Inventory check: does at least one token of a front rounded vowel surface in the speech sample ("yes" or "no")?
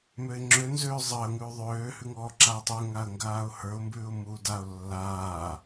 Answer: yes